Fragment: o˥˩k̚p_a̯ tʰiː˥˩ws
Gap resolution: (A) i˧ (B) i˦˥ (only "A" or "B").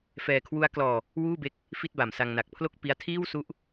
B